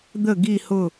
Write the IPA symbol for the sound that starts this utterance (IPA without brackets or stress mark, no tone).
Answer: d̪